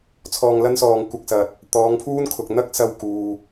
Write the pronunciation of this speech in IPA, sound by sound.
t͡sʰ ɔː˧ ŋ l ɐ˥ n s ɔː˧ ŋ kʷ ɐ˧ k̚ s ɐ˨ t̚ | t̪ ɔː˨˧ ŋ pʰ uː˥ n kʰ ʊ˨ k̚ n̪ ɐ˥ k̚ s ɐ˧ w k uː˨

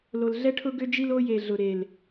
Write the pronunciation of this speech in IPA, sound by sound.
l o˨ l ɮ ɛ˦ ʈʰ ʊ˦ ɡ ʏ˦ d͡ʒ i˦ l o˦ j e˨ ɮ ʊ˨ ɾ e˨ l

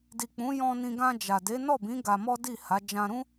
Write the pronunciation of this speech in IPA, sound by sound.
d i˨ k͡p ũ˨˦ j ɔ̃˧ n ĩ˧ ɡ ã˧ d͡ʒ a˨ d e˨˦ n ɔ˦˨ b ĩ˨˦ ɡ a˧ m ɔ˦ d i˦˨ h a˨˦ d͡ʒ ã˧ ɾ ũ˦

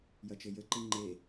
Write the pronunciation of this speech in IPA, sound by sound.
j ɐ t͡ʃ ɘ j ɘ ǃ i ŋ͡ǃ e

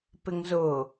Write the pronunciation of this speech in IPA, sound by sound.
p ɪ ŋ z ʊ

